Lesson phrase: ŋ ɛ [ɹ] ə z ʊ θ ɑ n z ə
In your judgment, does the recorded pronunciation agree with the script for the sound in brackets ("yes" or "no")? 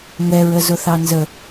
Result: yes